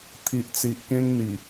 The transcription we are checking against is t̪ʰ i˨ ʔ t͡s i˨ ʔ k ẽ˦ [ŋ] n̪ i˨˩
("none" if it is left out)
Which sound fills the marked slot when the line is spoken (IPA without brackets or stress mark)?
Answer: ŋ